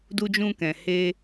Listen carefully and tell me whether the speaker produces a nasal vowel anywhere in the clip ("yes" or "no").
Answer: yes